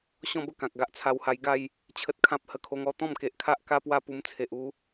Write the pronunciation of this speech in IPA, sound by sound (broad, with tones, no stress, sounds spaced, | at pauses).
ɕ ɔ̃˥˧ b ə˥˧ k ã˨ k̚ ɡ a˦ ʔ t͡sʰ a˧ w h a˧ j ɡ a˥˧ j | t͡ɕʰ ə˦ t̚ kʰ ã˦ p̚ h ə˧ kʰ o˧ ŋ ɔ˥˧ t̪ ɔ̃˥˧ m k e˨ ʔ kʰ a˦ ʔ k a˦ p w a˥˧ p u˧ m t͡sʰ e˨ ʔ u˧